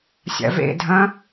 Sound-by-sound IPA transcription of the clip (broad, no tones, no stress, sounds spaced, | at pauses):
sʲ a̰ v ḛ dʱ ɐ̃